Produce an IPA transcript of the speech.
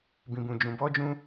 b ĩ˨ b ũ˨ d͡ʒ ũ˨ b ɔ˧ d͡ʒ ũ˧

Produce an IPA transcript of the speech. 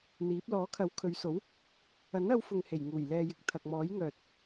n̪ iː˨˥ p̚ l ɔː˨˥ kʰ ɐ˨˥ w kʰ ɵ˨˧ ɥ s o˨˥ w | ɐ˨˥ n ɐ˨˧ w f ʊ˨ ŋ h e˨˩ j ŋ uː˨˩ j l ɛː˨ j ɪ˨ k̚ t̪ʰ ɐ˨ k̚ m ɔː˨˥ j ŋ œː˨ t̚

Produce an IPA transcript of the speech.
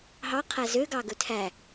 ɦ ɑ qʰ æ z ø ɡ ɑ ɡ ɵ tʰ æ

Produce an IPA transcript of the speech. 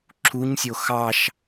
ǁʰ u ɲ sʲ o x ɑ ʃ

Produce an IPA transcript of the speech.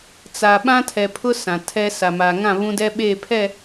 t͡s a˨ ɓ ã˦ tʰ ɛ˨ pʰ ʊ˦ s ã˨ tʰ ɛ˦ s a˨ m a˨ ŋ ã˦˨ β ũ˦ d ɛ˦ ɓ eː˦˨ pʰ ɛ˦˨

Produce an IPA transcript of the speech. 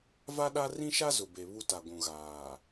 v a˦ ɗ a˦ r ĩ˦ ʃ a˦ z ʊ˨ b e˨ β u˦ t a˨ ɡʷ ũ˨ ɣ aː˨

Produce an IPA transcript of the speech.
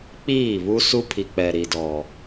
k͡p iː˦˨ β u˦ s u˦ pʰ i˨ k͡p ɛ˨ ɾ i˨ d ɔ˨

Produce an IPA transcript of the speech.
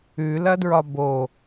ʉ l ɐ d ɹ ɒ b o

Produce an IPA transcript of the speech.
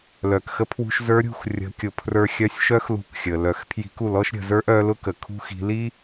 l œ˩ k x ə˧ pʰ w ṳ˧ ʃ z ə˞˧˥ ɾʲ ṳ˧ x rʲ ə̤˩˧ kʲ ʊ˩ pʰ r ə˞˧ xʲ œ˧˥ sʲ ʃ œ˥ x l ṳ˧˥ k xʲ ə˩ l œ˩˧ x pʰ j i̤˧˥ k u˩˧ l ɔ˥ ʃ ɾʲ ə̤˩˧ z ə˞˥ ʔ œ˧˥ l ʊ˥ k ə˩ kʰ ṳ˥ x i̤˧˥ l i˥

